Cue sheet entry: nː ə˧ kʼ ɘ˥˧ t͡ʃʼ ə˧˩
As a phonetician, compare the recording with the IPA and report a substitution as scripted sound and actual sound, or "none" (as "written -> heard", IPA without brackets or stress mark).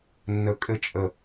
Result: none